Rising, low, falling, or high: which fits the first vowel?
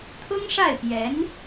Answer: high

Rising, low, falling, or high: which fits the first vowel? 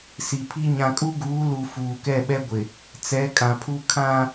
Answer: low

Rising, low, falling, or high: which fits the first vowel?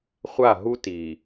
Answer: falling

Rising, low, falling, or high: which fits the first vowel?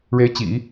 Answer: rising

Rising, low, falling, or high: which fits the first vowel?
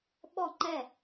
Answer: falling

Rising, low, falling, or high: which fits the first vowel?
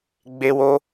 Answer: high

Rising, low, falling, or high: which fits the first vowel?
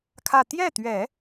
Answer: falling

